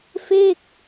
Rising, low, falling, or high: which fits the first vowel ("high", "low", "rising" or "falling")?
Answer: falling